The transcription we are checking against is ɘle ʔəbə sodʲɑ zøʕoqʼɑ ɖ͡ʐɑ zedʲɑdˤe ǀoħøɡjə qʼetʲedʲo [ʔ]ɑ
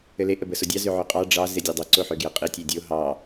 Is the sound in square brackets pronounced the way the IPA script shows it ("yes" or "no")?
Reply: no